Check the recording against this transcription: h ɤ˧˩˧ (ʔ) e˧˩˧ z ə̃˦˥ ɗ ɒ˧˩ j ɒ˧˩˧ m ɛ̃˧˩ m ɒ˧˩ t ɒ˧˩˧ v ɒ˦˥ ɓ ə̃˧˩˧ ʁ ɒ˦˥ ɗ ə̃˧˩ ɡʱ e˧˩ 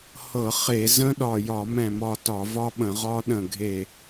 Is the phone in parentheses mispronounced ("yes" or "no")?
yes